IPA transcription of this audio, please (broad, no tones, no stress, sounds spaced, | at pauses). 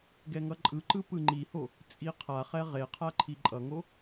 ɡ ɛ ŋ ʌ ǃʼ ɯ ǃ ɯ p ɯ ŋ͡ǃ i h o | t͡sʼ i qʰ a χ ɛ ʁ e qʰ a ǃʰ i ǃʼ ʌ ŋ o